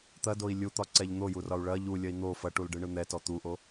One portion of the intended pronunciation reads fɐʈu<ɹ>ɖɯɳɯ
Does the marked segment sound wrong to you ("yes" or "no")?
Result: yes